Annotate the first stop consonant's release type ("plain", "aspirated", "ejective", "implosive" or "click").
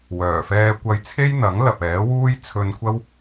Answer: plain